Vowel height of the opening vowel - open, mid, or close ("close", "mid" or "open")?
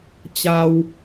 open